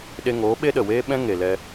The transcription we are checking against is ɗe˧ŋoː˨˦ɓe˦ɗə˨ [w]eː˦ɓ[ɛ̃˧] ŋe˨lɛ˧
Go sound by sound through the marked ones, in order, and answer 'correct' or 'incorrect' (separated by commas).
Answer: correct, incorrect